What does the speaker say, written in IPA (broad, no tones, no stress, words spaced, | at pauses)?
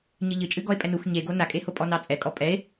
ɲɨʎɨt͡ʃʼɨ ɡɔe̯pʼɛnux ɲeɡo nakʼeho pʼɔnɑt͡sʼɛkʼɔ pʼɛe̯